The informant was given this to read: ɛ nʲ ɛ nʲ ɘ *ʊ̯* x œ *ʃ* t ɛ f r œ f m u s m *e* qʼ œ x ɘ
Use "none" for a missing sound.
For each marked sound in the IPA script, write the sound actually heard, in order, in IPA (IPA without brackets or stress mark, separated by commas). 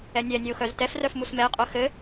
ʊ̯, z, ɛ